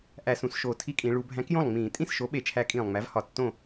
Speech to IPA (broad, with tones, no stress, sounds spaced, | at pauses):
ʔ æ˧˩˧ s ũ˩˧ s ʃ oː˨˩ tʰ i˦ kʼ ĩ˩˧ ɭ u˩˧ bʱ æ̃˨˥ k j õ˥˩ lˠ ŋ͡m ĩː˧˩˧ tʼ ĩ˥˩ s ʃ o˨˥ ɓ e˩˧ t͡ʃʰ æ˨˥ kʼ ĩː˨˩ lˠ ŋ͡m æ˨˥ v h ɒ˨˩ tː õ˥˩